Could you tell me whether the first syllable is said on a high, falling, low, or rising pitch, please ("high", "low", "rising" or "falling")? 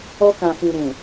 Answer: high